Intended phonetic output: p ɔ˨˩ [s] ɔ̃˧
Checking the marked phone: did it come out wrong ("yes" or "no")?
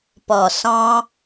no